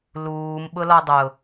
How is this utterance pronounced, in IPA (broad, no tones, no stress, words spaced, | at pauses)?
luːm ɓʊlɔdˤʊ